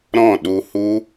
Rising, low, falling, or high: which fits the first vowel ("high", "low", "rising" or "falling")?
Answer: falling